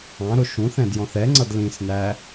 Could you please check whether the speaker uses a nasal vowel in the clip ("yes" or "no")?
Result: yes